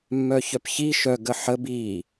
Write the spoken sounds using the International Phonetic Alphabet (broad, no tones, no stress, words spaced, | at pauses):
mːœçœpçi ʃœ ɡəħə bi